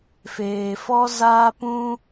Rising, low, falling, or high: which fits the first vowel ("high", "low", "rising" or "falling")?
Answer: low